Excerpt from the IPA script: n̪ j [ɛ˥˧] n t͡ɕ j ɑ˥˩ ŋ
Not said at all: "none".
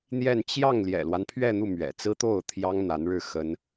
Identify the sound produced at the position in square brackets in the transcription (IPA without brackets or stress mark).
ɛ˥˧